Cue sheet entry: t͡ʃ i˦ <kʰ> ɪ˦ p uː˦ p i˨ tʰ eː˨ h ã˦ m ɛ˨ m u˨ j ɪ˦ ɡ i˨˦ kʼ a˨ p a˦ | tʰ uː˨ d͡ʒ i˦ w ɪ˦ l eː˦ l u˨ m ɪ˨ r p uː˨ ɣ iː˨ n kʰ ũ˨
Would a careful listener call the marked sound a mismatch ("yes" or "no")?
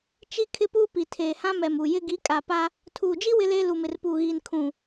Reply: no